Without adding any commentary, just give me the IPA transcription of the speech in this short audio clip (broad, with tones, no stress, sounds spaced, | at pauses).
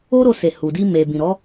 o˦ ɾ o˧ s e˨ h u˨ d i˧ m e˨ b ĩ˨ ɾ ɔ˨˦